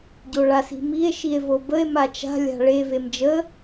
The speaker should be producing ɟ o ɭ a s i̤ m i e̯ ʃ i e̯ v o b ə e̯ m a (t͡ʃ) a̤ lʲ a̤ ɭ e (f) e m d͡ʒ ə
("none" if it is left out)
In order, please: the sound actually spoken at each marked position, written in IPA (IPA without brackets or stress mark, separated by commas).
t͡ʃ, v